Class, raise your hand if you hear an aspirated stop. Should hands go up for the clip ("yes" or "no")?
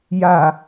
no